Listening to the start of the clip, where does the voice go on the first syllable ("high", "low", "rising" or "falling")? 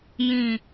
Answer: low